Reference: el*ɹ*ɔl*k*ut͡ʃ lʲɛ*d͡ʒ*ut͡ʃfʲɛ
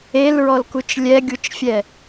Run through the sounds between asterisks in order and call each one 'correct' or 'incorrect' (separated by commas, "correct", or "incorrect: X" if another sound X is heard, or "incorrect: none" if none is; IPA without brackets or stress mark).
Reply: correct, correct, incorrect: ɡʲ